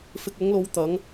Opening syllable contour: low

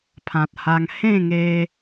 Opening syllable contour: low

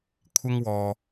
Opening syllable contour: high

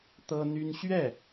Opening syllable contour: high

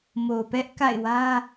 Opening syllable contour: low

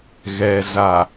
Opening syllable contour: low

